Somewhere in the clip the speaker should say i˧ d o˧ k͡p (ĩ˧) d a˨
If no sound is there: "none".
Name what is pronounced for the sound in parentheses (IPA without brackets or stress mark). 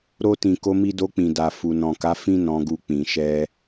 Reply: ĩ˨